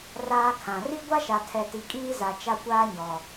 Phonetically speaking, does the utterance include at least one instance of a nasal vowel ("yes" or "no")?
yes